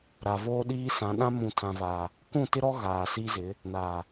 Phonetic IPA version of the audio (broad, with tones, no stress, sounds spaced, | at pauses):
ɾ a˨ v oː˦ ɗ iː˦ s ã˨˦ ɗ ã˦ m ũ˨ tʰ ã˨ v aː˨ | kʷ ũ˦˨ t ɪ˦ ɾ ɔ˦ ɣ aː˨ s i˦ z ɪ˨˦ | n aː˨